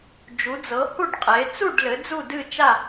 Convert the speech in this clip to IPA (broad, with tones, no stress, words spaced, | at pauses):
d͡ʒu˨˦d͡zɤ˨˦hu˥˧ɖ qʼe˨˦ t͡su˥˧ɖlɘ˨˦ d͡zu˥˧dɨ˥˧t͡ʃa˥˧